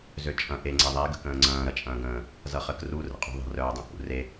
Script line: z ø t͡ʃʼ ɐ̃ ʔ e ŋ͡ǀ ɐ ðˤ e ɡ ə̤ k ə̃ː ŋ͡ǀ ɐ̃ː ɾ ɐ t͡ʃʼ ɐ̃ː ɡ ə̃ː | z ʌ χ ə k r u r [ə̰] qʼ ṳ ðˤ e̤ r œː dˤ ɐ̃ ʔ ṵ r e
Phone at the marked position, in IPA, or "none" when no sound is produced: ə̰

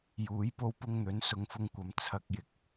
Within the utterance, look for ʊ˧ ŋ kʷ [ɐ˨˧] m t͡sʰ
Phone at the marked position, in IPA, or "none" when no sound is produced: ɐ˨˧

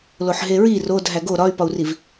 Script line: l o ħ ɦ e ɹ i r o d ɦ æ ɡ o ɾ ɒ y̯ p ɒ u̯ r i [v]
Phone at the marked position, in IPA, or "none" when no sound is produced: v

